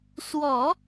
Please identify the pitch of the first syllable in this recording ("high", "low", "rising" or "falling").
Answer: low